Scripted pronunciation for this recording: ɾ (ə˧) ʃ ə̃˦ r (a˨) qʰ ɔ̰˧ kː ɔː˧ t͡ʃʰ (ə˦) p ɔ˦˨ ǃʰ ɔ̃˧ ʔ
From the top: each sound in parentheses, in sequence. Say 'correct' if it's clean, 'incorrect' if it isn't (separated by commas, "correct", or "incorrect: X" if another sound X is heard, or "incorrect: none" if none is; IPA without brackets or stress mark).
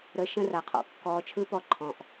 correct, correct, incorrect: ɯ˦